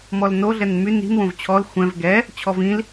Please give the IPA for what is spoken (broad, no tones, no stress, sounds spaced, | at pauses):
m ɔ l n o ɮ ɛ n m y n i̤ n w õ v t͡ɕʰ ɔ l xʷ ɛ̃ v ɡ ɛ | t͡ɕʰ ɔ v ĩ l